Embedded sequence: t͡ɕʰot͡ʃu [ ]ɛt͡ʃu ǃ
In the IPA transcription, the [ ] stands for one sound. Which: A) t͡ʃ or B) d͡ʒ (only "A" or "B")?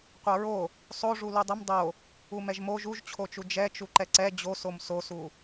B